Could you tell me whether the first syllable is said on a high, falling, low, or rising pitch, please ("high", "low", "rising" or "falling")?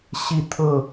falling